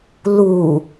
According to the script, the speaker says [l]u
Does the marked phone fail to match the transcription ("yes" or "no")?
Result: no